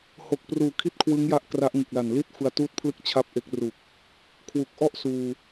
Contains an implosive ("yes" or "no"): no